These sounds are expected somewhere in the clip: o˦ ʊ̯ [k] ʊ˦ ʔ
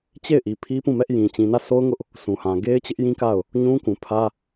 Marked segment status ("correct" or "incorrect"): incorrect